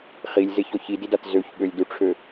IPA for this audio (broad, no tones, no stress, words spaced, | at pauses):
χilʲzeçɔ çididat zøçɠølʲduʈ͡ʂʰø